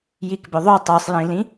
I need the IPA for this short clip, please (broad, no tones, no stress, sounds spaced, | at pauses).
j i k b ɵ ðˤ o tˤ ʉ sˤ j ĩ l ĩ